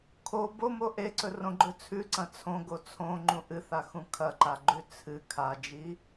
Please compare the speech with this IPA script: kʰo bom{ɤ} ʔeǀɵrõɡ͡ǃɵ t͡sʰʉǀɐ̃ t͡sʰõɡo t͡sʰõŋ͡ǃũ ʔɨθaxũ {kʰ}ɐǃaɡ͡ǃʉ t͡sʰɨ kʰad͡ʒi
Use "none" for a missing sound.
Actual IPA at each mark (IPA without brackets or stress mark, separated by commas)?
o, kʰ